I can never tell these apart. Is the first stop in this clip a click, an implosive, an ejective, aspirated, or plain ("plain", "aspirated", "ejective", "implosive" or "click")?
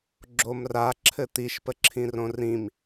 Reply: click